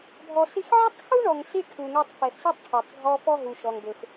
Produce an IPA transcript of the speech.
bʱ ɔ˨ s i˧ x ʕ i˦ tˤ x u˦ ɳ ɔ˨ ŋ s i˦ ʈʰ u˨ ŋ ɛ˧ tˤ f ɛ˨ x s u˦ tˤ ʈʰ ɔ˨ tˤ ɡʱ ɔ˧ f ɔ˦ ɦ u˨ ʃ ɔ˧ ŋ b ø˧ x

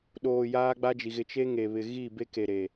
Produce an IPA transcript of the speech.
ɗ oː˨ j aː˦ ɡ͡b a˦ d͡ʒ i˨ ɣ ɪ˨ t͡ʃ e˦ ŋ e˨ β ɪ˨ ɣ i˦˨ b e˦ k e˨ ɾ e˨

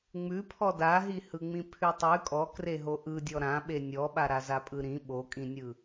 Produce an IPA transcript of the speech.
ŋ͡m ʉ pʰ ɔ d a ɦ i h ɯ ŋ͡m ĩ pʰ ʉ tˤ ʉ kʼ ɔ k r e ɦ o ʔ ɯ dʲ ɔ ɾ ã ɓ e nʲ ɔ ɓ a ɾ a z a pʼ ɯ ɾ ĩ ɓ o kʼ ĩ nʲ ɯ

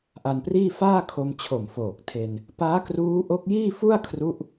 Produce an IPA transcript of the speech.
ʔ a˧ n p r iː˥˩ f aː˥˩ kʰ o˧ m t͡ɕʰ o˨˩ m f oː˨˩ k̚ tʰ e˧ n | p aː˦˥ k r uː˦˥ ʔ o˦˥ k̚ j iː˥˩ f u˥˩ a̯ kʰ r u˦˥ ʔ

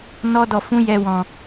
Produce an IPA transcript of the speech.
n ɔ˧ d ɔ˨ f ũ˨˦ j ɛ˧ w ɔ̃˨

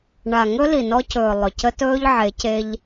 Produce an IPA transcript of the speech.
ɳ a˨ ŋ ɵ˦ l i˨ n ɔ˦ c ɵː˨ lˠ ɵ˨ c ə˦ t ɵː˦ ʎ ʕ e˨˦ c e˦ ʎ

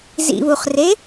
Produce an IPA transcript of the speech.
z ḭ β u χ r e

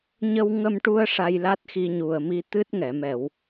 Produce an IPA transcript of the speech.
ɲ ə˧ w ŋ ə˧ m ʈ u˧ ə̯ ʂ a˧ j l a˦˥ t̚ x i˧ ɲ u˨˩ ə̯ m i˧ t̪ ɨ˦˥ t̚ ŋ ɛ˨˩˨ m ɛ˨˩˨ w

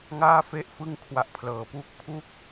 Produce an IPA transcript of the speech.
ŋ aː˥˩ f e˦˥ ʔ f ɯ˥˩ ŋ kʰ w a˦˥ ʔ pʰ l ɤː˧ p uː˥˩ k̚ pʰ u˥˩ k̚

